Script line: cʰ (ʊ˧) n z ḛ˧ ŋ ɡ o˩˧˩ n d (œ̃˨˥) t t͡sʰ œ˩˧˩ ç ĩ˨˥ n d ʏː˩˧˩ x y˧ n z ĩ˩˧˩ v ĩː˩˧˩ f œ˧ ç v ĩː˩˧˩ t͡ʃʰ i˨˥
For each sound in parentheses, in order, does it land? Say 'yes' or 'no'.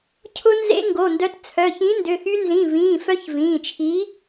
yes, no

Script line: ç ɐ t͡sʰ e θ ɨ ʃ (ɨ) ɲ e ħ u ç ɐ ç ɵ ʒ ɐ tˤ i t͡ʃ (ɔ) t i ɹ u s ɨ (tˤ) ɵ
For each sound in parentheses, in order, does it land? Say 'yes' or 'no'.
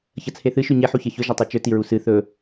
no, no, no

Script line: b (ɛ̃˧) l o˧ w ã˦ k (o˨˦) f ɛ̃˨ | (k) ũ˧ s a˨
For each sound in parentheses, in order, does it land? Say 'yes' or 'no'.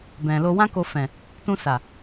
no, no, no

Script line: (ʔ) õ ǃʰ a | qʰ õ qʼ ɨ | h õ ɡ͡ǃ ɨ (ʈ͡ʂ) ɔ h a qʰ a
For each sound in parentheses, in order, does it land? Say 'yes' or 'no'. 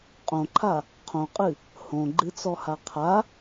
no, no

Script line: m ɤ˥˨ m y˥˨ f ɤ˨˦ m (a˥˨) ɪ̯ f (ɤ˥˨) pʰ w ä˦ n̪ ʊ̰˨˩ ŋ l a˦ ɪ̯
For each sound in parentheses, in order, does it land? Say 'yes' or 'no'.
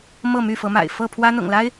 no, yes

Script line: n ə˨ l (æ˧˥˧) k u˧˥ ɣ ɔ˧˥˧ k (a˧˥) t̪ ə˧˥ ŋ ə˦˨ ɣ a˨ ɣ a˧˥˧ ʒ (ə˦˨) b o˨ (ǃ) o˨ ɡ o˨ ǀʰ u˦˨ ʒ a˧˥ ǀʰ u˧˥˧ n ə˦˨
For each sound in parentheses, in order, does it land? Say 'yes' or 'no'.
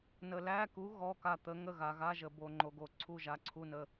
yes, no, no, no

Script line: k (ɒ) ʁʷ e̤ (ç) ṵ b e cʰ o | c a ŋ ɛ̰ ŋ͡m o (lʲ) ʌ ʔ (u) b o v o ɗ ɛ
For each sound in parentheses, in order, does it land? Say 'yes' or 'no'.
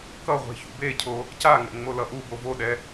no, yes, no, yes

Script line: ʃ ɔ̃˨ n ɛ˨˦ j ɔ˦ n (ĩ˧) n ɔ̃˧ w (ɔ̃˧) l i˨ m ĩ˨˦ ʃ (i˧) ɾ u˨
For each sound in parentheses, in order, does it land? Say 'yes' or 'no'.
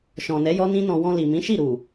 no, yes, no

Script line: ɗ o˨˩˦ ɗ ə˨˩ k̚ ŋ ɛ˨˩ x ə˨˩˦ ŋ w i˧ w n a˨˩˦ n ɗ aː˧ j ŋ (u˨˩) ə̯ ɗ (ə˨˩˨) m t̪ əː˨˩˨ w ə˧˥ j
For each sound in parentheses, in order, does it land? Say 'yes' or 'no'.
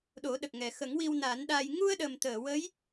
no, no

